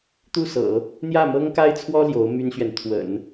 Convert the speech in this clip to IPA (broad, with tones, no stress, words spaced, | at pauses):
t̪u˥˩sɤ̰˨˩˦ | n̪jä˥˩mɤ˥ŋka˥ɪ̯t͡sʰwɔ˥ ljo˧˥ʊ̯my˥nɕɥɛ˨n t̪ʰwə̰˨˩˦n